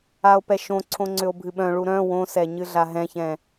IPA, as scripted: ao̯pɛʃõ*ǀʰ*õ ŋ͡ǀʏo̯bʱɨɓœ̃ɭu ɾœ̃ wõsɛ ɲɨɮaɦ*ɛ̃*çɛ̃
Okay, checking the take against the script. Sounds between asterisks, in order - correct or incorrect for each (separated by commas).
correct, correct